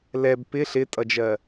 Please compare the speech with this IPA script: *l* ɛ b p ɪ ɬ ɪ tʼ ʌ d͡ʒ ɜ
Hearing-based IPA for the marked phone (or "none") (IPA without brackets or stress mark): l